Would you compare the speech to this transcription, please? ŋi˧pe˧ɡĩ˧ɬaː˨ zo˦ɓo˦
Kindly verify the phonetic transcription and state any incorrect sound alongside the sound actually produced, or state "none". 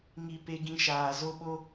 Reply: ɬ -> ʃ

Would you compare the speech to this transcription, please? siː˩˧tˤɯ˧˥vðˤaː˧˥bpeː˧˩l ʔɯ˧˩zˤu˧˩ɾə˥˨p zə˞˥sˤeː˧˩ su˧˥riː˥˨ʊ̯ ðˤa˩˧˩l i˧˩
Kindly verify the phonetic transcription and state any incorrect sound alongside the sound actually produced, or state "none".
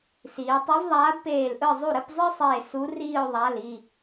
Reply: z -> zˤ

